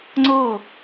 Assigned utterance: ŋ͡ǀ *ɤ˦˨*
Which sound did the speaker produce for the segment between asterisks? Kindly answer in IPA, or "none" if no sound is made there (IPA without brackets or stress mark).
ɤ˦˨